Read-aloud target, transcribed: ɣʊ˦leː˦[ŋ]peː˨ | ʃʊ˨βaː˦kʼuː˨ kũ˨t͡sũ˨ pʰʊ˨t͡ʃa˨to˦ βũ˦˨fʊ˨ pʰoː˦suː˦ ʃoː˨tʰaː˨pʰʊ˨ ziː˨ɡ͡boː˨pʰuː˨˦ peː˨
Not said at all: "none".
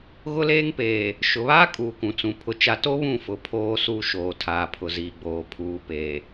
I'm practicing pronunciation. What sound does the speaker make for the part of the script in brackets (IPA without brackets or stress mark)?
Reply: ŋ